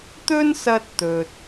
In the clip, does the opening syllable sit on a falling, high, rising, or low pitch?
high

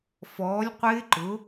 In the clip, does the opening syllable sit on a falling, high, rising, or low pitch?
rising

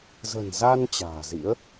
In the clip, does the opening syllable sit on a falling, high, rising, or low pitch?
low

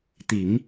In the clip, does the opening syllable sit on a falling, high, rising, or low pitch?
low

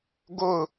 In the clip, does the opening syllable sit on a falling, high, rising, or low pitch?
falling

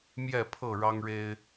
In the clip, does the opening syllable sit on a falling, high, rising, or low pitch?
falling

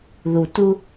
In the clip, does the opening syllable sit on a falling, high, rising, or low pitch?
low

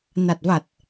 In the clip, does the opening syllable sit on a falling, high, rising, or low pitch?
low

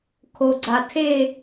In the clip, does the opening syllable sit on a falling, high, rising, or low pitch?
low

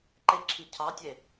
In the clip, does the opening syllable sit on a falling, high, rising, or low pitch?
high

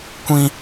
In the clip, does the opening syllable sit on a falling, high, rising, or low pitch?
high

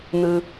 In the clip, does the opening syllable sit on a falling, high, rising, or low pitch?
low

